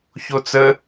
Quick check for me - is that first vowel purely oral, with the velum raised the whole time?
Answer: yes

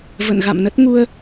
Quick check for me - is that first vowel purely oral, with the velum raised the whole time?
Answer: yes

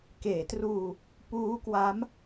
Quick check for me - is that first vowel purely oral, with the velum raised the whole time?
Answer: yes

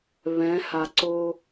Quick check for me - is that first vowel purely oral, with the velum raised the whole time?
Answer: no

